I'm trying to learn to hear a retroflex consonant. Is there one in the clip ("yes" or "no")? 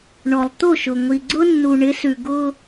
yes